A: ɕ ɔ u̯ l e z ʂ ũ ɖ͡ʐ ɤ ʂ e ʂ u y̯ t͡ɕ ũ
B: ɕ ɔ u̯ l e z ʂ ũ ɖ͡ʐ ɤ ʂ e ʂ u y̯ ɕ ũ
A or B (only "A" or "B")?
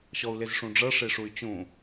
A